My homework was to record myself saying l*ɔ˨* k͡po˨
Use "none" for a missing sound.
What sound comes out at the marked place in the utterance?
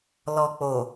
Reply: ɔ˨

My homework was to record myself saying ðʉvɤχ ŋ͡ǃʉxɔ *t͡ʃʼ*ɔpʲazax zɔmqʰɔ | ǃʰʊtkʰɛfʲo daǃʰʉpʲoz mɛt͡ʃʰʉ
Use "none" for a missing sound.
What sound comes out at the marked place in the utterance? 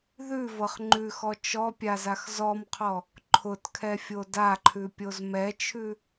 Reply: t͡ʃ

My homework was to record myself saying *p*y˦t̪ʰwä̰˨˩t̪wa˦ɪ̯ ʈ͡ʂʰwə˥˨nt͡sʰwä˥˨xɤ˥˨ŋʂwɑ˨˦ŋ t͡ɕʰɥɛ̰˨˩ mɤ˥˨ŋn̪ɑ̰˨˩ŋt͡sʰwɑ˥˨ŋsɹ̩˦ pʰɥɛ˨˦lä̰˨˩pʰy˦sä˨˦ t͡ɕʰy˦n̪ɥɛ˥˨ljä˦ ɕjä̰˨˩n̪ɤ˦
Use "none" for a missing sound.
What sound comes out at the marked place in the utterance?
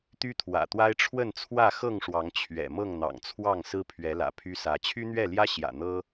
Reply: t̪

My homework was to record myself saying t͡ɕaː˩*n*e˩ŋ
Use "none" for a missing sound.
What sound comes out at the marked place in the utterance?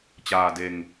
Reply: d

